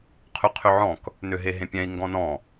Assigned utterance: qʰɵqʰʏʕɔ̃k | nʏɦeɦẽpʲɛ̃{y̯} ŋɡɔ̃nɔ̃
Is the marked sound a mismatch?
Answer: yes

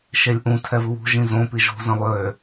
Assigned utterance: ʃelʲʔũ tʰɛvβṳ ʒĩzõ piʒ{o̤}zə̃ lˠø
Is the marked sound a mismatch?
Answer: no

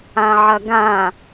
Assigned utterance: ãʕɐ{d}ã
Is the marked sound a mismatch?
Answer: yes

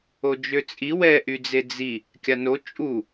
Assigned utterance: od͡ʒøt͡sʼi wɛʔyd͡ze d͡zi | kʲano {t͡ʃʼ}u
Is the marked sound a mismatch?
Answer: no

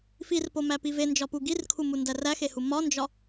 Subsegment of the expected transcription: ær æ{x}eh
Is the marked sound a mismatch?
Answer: no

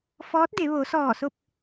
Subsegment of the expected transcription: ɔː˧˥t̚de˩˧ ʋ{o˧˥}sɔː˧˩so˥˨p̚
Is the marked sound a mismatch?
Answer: yes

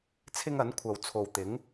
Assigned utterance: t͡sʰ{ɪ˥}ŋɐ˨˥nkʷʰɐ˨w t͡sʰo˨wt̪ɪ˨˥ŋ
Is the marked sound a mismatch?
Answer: no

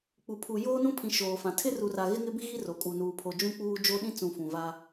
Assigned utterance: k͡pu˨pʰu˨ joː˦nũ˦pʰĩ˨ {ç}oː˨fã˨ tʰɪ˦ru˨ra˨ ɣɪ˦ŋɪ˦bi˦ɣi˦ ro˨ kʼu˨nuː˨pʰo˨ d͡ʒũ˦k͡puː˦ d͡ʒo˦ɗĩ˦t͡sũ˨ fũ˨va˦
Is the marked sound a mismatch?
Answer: yes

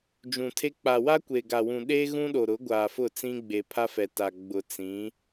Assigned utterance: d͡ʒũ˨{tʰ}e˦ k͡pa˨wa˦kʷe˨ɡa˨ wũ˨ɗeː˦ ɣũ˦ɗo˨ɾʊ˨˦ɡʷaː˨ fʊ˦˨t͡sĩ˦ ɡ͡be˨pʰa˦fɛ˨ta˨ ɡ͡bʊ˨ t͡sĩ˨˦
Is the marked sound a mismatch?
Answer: no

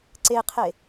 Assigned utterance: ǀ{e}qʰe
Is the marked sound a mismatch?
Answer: no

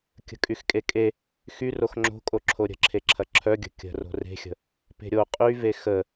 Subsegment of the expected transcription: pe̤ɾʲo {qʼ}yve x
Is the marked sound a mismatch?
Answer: no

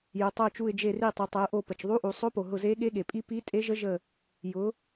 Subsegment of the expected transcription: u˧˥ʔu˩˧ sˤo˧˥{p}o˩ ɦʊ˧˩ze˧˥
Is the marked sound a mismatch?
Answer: no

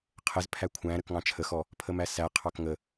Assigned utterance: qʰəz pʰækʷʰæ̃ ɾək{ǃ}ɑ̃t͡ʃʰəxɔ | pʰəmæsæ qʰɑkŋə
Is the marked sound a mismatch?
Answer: yes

